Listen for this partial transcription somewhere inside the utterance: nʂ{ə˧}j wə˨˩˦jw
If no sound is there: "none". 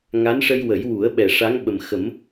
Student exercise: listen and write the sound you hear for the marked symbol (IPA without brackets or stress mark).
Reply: ə˧